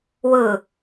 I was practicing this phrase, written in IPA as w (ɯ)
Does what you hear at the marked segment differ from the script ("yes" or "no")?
no